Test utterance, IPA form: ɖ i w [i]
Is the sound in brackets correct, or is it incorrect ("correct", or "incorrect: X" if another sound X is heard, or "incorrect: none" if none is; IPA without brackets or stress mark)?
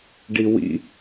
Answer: incorrect: ḭ